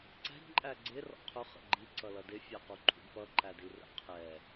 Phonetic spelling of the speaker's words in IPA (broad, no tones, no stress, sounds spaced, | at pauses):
ǀ ɛ̤ d ǃʼ æ ɡ͡ǀ ɪ r ɔ̰ qʰ ʊ χ ə̰ ɡ͡ǃ i ǀ ʌ l ʌ d ɪ fʲ æ q u ǃʰ ṵ d p ʌ ǃ æ d i r ə̰ qʰ ɛ